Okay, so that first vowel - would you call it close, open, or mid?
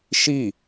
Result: close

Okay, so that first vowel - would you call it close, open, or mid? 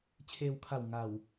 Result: mid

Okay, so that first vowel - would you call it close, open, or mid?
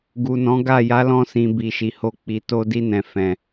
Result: close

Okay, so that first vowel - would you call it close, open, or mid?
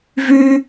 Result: close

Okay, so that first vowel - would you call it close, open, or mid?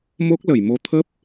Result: mid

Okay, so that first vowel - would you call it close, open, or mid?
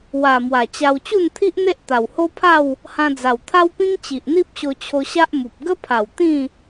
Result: open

